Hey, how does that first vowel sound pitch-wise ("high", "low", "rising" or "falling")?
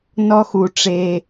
high